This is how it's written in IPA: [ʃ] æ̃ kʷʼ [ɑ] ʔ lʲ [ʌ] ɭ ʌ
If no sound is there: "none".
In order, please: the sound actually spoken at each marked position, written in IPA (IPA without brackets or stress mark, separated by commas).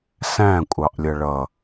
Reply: s, ɑ, ʌ